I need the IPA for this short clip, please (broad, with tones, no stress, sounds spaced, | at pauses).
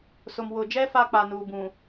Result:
s ʊ˨ m w ʊ˨ d͡ʒ ɛ˦ f a˦ k͡p a˨ n uː˨ b ũ˨